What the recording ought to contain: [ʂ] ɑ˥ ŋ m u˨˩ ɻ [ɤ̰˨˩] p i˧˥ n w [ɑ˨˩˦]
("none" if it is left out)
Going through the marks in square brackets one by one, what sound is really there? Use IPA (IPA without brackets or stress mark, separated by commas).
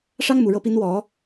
ʂ, ɤ˧˥, ɔ˨˩˦